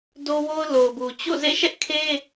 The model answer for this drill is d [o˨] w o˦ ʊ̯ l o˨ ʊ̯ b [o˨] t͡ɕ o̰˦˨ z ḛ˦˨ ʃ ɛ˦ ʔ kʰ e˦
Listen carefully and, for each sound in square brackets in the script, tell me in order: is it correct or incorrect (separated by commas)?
incorrect, incorrect